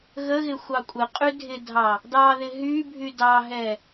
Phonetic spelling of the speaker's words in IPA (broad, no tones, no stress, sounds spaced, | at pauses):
ɣ ə ɣ ɪ xʷ ɑ kʷʼ ɘ qʼ y dʱ ɪ dʱ ɑ | d ɑ ð ɪ ɦ y bʱ y d ɑ ɦ ɛ